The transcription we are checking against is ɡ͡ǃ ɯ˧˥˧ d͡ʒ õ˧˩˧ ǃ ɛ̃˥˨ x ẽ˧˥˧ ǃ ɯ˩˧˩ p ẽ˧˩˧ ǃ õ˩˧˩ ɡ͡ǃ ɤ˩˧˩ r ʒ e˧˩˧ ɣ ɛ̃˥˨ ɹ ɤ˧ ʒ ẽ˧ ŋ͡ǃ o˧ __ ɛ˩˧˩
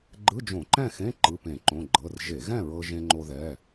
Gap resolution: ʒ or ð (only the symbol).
ð